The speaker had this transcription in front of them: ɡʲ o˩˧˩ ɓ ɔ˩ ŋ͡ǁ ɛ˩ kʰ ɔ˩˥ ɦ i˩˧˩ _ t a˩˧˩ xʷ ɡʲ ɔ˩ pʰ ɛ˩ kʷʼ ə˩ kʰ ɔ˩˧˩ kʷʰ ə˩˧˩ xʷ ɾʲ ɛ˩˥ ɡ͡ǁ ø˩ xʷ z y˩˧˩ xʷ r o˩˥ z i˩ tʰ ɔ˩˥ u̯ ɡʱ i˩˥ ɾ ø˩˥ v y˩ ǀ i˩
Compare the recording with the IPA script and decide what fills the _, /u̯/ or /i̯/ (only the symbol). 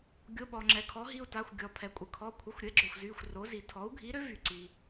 u̯